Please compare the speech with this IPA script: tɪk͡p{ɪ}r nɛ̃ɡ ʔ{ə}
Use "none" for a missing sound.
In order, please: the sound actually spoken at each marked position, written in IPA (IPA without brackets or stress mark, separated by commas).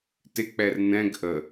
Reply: ɛ, ə